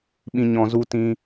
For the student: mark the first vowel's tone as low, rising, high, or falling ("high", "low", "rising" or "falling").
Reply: low